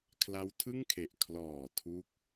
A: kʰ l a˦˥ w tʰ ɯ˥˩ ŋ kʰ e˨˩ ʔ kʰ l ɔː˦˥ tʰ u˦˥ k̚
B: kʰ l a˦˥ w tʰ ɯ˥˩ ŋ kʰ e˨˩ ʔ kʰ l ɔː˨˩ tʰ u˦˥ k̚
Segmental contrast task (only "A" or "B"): B